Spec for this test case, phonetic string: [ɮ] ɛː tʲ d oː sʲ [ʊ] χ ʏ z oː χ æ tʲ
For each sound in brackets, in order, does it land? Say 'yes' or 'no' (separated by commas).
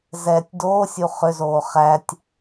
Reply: no, no